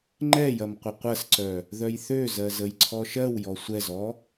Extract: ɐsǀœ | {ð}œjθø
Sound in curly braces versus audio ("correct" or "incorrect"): correct